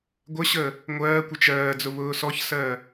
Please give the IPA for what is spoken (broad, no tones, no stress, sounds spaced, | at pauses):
ɡʷ ə ɕ ə | ŋʷ ɜː kʷ ə t͡ʃ ɜː d͡z ʊ β ʊː s ɔ ç s ɜ